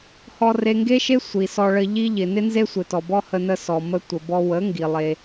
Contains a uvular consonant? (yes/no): no